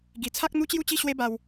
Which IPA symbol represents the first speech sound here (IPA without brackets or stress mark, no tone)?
ɡ